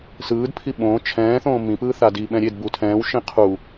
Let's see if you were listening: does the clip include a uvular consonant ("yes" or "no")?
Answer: yes